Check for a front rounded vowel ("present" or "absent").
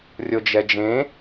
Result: absent